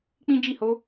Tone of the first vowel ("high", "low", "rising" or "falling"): high